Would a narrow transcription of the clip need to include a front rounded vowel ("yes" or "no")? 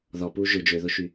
yes